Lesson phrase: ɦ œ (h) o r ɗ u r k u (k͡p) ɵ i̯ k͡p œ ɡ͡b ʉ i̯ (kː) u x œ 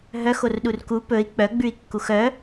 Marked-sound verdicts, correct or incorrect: incorrect: x, incorrect: p, correct

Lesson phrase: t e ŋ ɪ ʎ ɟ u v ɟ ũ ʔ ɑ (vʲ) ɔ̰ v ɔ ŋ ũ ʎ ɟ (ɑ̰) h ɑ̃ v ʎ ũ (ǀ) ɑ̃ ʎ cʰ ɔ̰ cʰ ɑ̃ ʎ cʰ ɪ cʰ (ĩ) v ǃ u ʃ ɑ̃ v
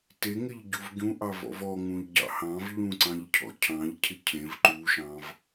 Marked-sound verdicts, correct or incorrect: incorrect: v, correct, correct, incorrect: ẽ

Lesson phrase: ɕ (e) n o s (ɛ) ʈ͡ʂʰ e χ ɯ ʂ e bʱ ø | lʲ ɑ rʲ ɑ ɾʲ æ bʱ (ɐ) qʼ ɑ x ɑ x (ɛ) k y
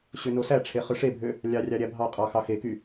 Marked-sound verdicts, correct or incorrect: incorrect: ø, incorrect: æ, incorrect: ɑ, incorrect: e

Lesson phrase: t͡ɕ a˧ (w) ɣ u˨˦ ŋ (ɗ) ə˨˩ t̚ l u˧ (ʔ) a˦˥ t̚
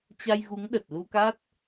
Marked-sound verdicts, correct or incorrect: incorrect: j, correct, incorrect: k

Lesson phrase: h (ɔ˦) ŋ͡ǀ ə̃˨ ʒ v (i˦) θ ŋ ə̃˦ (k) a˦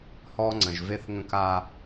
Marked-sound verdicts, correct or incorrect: correct, incorrect: e˦, correct

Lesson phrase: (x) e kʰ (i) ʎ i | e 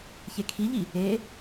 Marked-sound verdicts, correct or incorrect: incorrect: ç, correct

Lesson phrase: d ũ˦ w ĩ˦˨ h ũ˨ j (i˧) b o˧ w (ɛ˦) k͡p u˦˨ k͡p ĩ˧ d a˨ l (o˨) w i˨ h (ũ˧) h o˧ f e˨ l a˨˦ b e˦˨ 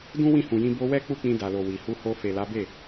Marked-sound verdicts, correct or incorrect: incorrect: ĩ˧, correct, correct, incorrect: u˧

